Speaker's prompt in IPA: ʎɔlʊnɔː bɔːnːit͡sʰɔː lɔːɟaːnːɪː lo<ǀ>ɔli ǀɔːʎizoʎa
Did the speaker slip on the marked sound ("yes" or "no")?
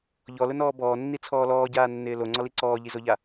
yes